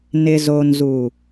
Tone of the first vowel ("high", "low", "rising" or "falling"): low